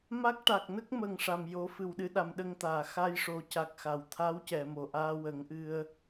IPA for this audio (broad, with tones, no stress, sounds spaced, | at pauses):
m a˦˥ k̚ ʈ a˨˩ k̚ n ə˦˥ k̚ m ə˨˩ ŋ ʂ a˨˩ m j o˨˩˦ f ɨ˨˩ w ɗ ɨ˧ ɗ a˨˩˨ m ɗ ə˧ ŋ t̪ aː˨˩˨ x a˧ j ʂ o˨˩˦ c a˨˩ k̚ x a˨˩ w t̪ʰ a˧˥ w c ɛ˨˩˨ m o˨˩ ʔ aː˧ w ə˨˩˦ ŋ ʔ ɨ˧ ə̯